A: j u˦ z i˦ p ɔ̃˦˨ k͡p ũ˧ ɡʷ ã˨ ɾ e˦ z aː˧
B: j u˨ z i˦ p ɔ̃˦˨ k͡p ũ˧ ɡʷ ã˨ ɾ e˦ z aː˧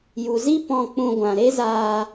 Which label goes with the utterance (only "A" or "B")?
B